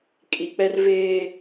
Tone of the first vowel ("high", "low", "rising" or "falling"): low